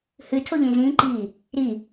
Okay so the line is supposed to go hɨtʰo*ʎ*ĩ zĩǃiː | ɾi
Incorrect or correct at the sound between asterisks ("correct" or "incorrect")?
correct